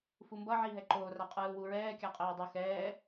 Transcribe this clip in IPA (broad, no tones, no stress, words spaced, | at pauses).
fumbʌ ʕiɦɛǃoː raqʼɯːwuɹɛː kʲaqʼeːdˤʌ xɛː